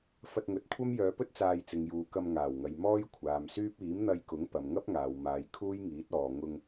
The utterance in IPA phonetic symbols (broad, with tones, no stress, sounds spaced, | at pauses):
f ɐ˧ t̚ ŋ ɵ˨˥ t̚ kʷʰ ɐ˥ m j œː˨˧ p ɵ˥ t̚ t͡s aː˧ j t͡s ɪ˨ ŋ j uː˨ k ɐ˧ m ŋ aː˨˩ w ŋ ɐ˨ j m ɔː˥ j kʷʰ aː˨ m s yː˥ p̚ iː˨˥ m n̪ ɐ˧ j k ʊ˨˥ ŋ p ɐ˨ m ŋ ɐ˥ p̚ ŋ aː˨ w m aː˨˧ j kʰ uː˥ j ŋ iː˨˥ t̚ ɔː˨ ŋ ʊ˧ ŋ